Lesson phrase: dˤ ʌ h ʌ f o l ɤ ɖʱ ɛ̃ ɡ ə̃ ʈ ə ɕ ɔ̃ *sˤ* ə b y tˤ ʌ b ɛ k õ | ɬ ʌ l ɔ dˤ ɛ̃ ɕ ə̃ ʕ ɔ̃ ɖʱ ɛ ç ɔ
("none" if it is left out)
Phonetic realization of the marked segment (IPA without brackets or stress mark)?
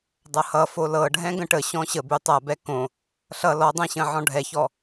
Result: ɕ